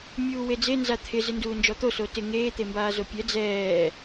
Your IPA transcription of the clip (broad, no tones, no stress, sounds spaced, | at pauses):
mʲ uː w e d͡z e n z a t̪ʰ ɪ z ɪ n d uː n d͡ʒ ɔ t̪ o s o t ɪ ŋ eː t̪ e m b aː z o pʲ ɛ d͡z ɛː